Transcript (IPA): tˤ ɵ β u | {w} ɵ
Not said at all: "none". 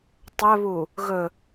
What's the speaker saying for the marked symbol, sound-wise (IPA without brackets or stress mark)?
ɣ